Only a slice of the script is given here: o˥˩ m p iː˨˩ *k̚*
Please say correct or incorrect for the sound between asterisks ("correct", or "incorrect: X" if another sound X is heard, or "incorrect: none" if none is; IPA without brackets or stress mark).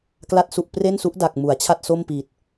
incorrect: t̚